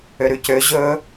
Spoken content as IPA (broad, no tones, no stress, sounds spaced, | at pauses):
ø ɾ ʉ c ø ʑ ɵː